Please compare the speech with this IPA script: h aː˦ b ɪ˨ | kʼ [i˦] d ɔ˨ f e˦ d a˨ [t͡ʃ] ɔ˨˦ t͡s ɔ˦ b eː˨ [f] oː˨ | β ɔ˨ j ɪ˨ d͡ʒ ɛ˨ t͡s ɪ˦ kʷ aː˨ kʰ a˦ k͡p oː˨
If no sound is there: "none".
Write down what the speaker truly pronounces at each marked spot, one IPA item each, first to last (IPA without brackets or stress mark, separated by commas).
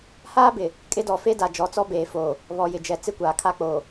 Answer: ɪ˦, d͡ʒ, f